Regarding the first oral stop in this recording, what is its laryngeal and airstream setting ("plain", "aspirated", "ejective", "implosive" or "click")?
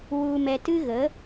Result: plain